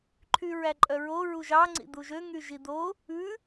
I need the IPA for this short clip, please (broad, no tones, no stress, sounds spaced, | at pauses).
ǃʰ y ɹ æ ǃʼ œ ɹ o ɹ u ʒ ɑ ŋ͡ǀ ḭ d̪ u ʒ ø ŋ y ʒ i d̪ o | ʉ